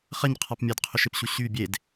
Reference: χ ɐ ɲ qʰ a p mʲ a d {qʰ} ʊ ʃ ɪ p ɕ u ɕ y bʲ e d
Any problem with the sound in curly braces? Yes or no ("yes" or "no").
no